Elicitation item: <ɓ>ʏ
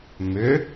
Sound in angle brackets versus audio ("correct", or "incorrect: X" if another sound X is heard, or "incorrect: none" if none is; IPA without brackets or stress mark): incorrect: m